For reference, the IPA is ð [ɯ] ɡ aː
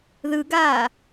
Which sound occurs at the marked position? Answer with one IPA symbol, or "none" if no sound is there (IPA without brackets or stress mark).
ɯ